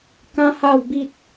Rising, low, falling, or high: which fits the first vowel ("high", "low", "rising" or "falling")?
high